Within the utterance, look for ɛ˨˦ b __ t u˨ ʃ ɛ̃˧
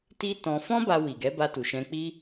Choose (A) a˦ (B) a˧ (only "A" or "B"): B